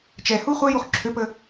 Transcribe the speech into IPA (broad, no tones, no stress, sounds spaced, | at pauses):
t͡ʃ ɛ h u χʷ ɛ j u χ ǁʰ ø p ə